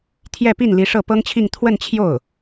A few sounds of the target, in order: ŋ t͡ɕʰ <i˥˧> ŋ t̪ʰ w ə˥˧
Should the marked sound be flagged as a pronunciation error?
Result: no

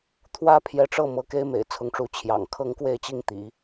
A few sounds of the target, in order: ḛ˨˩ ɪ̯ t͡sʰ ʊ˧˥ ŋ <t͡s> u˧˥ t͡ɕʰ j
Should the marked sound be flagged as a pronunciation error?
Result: yes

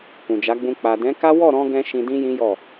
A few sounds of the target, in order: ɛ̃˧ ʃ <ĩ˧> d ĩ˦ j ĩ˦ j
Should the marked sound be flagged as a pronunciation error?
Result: no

